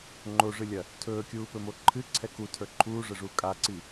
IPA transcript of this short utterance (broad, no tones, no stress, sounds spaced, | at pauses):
ŋ͡ǃ o ʐ ɨ lʲ ɐ | tʰ ɵː kʲ uː p ɵ m o ǃʰ ɨ ǀʰ ɛ k u tʰ ə˞ ǃʰ uː ʐ ə ʐ uː kʼ a ǀ i